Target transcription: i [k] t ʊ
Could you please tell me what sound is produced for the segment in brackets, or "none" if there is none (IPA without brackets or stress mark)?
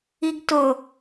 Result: ɡ